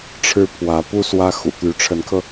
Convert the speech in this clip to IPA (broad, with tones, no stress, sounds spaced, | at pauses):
ʈ͡ʂʰ ɻ̩˥ pʰ w ä˧˥ p u˥ s w ä˥ x ṵ˨˩ t̪ y˧˥ ʈ͡ʂʰ ə˧˥ n kʰ ɤ˧